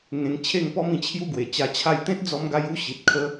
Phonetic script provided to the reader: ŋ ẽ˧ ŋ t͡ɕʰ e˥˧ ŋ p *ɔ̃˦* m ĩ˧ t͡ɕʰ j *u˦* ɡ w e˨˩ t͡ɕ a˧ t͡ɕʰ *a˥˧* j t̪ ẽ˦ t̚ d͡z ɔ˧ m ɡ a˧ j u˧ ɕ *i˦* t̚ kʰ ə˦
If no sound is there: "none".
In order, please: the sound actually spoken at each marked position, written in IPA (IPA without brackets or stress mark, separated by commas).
ɔ˦, u˦, a˥˧, i˨